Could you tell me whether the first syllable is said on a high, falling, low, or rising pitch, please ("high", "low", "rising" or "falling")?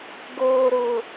low